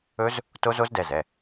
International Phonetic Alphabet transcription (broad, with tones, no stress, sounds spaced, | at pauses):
ɵ˦˥ z | t o˦˥ z o˦˥ z d ɛ˩˧˩ z ɛ˩˧˩